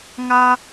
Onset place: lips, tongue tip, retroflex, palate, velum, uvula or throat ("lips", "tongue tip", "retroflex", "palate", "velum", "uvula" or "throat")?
velum